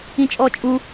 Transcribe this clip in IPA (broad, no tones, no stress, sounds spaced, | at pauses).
ĩ t͡ʃʼ ɔ t͡ʃʼ u